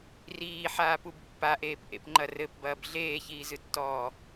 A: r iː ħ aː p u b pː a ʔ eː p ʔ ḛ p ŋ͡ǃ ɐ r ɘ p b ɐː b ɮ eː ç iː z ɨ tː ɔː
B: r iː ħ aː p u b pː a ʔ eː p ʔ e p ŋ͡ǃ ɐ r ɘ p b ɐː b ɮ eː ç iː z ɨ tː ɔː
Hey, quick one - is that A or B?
A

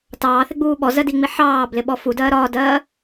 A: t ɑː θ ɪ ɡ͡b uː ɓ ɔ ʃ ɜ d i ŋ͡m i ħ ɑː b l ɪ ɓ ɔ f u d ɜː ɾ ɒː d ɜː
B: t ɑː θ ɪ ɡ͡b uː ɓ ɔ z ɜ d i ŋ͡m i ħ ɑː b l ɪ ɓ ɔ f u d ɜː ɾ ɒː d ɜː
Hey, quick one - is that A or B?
B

